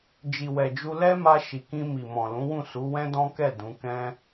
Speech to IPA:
d͡ʒi˨wɛ˨d͡ʒu˧ lɛ˦ma˧ ʃi˨kĩ˧ mi˨mɔ̃˨lũ˨˦wũ˦˨ su˨˦wɛ̃˦dɔ̃˦kɛ˦˨ dũ˨˦kɛ̃˦

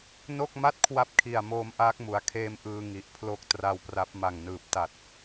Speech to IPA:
no˥˩k̚ma˥˩t̚ kʰwa˥˩p̚kʰi˨˩a̯moː˧mʔaː˦˥k̚ mu˩˦a̯kʰeː˦˥mʔɯː˧ ŋi˨˩ʔpʰlo˦˥k̚tra˦˥wpra˦˥p̚ ma˨˩ŋnɯː˨˩p̚ta˨˩t̚

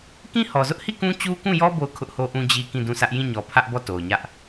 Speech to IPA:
kĩ˦hɔ˨zʊ˦ʔhi˦˨ kũ˦t͡ɕu˦kũ˦˨jɔ˦ bo˦˨ʊ̯kʰʊ˦ʔho˦ʔũ˦ d͡ʑi˦ kĩ˦˨dũ˦˨sä˦ʔ jĩ˦˨ɲɔ˨ pʰä˦ʔbɔ˦˨ to˨ʊ̯ɲä˦ʔ

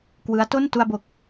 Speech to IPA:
kwɯ˦˥a̯to˥˩n tu˧a̯bo˨˩k̚

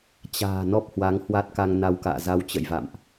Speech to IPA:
t͡ɕa̤ː˨˩ nɔ˦˥p̚hwa˨˦ŋ hwa˦˥t̚ka˧ŋna˧wka̰ː˧˨ za˧wt͡ɕə̰˧˨jva̰˧˨mʔ

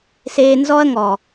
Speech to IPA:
seː˦ nzɔ˦ɐ̯ŋɔ˨

